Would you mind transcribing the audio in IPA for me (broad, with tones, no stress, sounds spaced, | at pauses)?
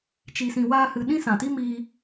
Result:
t͡ʃ i˧ s ĩ˧ w aː˦ h ɨ˧ ɗ ĩ˦ s ã˨ t i˦ m iː˧